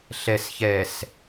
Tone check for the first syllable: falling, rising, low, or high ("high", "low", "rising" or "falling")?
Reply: low